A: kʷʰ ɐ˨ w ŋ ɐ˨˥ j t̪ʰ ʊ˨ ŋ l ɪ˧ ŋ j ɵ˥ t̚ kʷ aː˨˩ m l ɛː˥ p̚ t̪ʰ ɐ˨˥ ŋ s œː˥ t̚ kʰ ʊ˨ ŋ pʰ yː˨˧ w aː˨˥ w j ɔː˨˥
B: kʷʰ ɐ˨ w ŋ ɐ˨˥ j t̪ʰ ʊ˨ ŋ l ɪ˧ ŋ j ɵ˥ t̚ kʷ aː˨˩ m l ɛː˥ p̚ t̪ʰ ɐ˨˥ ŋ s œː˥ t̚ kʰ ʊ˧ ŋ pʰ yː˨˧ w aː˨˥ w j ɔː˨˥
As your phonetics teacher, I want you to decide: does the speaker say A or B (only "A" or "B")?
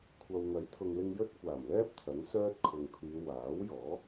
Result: A